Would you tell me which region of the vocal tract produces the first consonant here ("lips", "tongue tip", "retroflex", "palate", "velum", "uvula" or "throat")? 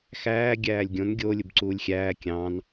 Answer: velum